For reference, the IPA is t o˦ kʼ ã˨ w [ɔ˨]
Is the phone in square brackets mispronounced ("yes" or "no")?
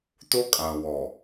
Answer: no